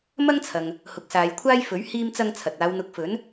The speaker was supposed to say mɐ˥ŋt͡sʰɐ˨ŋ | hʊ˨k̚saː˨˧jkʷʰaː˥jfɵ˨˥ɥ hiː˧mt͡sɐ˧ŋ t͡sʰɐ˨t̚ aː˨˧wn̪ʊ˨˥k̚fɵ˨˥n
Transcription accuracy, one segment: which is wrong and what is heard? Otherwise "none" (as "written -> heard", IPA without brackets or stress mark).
none